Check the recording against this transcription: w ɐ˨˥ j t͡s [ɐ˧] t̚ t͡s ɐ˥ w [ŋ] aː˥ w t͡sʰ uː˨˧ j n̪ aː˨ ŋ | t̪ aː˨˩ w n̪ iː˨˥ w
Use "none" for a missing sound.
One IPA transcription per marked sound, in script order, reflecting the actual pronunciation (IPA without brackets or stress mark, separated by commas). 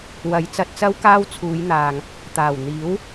ɐ˧, k